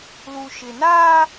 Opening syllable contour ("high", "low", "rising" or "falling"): low